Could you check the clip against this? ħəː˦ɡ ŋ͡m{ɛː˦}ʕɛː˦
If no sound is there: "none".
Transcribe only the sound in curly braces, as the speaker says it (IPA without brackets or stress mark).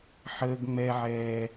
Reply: ɛ˦